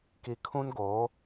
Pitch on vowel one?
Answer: low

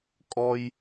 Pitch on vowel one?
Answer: high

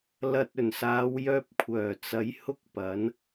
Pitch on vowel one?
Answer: low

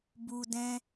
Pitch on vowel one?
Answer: low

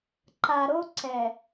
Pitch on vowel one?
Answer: low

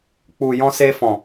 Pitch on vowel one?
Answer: low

